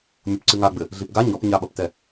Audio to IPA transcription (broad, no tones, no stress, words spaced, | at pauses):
mʲopǀɨŋaɡ͡bɘ | ɮipɡa ɲɔpɲaɓɐptɛ